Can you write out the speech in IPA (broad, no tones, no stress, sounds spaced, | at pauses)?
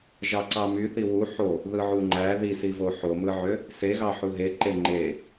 ʒ ɑ ǀ ɑ m y θ i w u ħ o | ð ɯ ʕ u ŋ͡ǃ æ ð i s i v o ħ o m ɯ ʕ ø | s e ɣ ɑ ħ u ɦ e ǃ e ŋ͡ǃ e